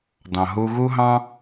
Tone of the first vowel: low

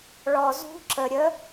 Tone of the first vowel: low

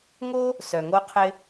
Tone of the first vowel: high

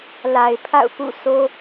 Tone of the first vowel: low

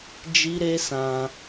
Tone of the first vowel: high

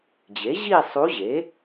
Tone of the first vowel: rising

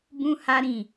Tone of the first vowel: high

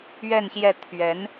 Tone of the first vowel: falling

